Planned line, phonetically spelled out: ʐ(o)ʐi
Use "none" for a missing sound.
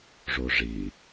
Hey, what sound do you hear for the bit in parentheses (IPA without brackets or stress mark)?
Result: o